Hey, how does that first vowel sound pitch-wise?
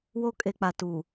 high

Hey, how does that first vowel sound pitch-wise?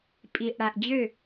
low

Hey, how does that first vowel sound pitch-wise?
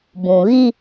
low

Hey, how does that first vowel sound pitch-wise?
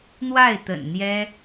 falling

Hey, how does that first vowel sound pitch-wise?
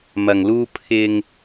low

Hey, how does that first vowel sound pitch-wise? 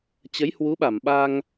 rising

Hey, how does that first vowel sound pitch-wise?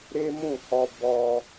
high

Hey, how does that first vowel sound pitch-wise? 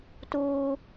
high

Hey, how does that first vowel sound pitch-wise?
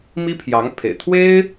high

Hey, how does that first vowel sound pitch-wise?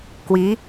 rising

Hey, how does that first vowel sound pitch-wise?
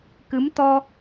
rising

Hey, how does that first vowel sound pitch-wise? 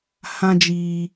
high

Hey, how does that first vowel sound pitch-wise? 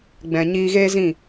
low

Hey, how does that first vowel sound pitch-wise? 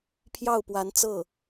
falling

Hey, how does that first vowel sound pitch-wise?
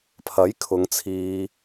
rising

